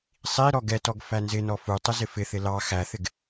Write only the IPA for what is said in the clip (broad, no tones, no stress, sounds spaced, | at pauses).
sˤ i ɾ ɔ ɡ ɛ t ɔ ɡ f æ n z ɪ n ɔ f u tˤ ɪ z ɪ f ɪ θ ɪ l ɑ x æ θ ɪ ɡ